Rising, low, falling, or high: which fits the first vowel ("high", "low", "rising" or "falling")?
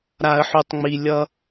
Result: high